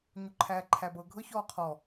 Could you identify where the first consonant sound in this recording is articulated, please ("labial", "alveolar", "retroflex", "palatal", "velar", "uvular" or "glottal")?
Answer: palatal